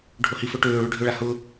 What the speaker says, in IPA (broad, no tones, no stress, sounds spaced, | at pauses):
ɖʱ o h i f ɵ ʈ øː ɭ ø ɖʱ ʏ ɭ a h ʊ